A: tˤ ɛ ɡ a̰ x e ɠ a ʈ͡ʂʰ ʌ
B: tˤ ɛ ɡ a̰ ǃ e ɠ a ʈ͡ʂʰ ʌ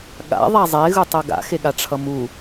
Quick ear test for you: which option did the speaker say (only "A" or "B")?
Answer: A